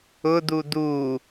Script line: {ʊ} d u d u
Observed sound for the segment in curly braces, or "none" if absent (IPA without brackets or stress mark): ʊ